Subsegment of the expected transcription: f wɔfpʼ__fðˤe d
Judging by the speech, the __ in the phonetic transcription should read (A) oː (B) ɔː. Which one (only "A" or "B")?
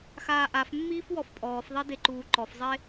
B